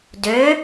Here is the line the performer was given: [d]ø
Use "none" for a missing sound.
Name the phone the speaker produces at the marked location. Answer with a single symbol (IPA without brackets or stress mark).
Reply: d